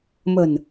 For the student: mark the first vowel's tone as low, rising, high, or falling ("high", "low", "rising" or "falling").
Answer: low